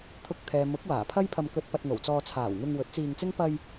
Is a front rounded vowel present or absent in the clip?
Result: absent